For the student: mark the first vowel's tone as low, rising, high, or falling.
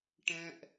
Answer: high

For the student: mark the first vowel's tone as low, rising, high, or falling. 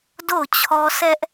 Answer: falling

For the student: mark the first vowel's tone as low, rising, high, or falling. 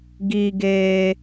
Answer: high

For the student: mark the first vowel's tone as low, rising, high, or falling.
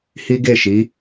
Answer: high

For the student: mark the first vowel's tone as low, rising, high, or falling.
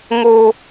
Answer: low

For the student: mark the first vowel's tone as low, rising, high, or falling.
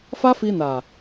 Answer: high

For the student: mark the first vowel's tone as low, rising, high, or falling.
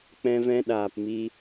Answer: high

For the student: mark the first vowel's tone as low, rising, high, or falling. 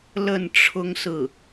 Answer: falling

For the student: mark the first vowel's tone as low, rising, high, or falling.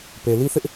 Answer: low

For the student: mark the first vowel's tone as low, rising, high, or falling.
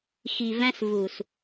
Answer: low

